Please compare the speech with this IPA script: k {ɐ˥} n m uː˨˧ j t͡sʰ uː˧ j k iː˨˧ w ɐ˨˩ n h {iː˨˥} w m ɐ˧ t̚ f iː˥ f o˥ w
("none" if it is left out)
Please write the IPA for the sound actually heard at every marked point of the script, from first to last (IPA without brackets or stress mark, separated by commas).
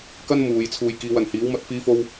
ɐ˥, iː˨˥